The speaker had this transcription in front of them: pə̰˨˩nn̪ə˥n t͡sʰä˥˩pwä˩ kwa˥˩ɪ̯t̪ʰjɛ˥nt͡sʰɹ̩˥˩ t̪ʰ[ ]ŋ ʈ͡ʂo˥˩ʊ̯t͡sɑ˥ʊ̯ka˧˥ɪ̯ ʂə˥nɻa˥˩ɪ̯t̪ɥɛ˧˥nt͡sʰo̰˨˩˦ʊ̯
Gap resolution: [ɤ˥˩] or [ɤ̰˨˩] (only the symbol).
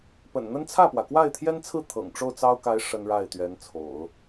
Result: ɤ̰˨˩